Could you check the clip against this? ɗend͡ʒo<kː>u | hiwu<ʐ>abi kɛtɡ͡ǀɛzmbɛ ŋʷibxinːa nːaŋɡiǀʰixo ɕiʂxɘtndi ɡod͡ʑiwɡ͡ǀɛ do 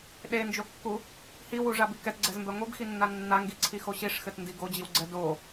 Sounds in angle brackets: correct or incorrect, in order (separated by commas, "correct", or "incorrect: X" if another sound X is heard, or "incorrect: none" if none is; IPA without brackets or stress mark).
correct, correct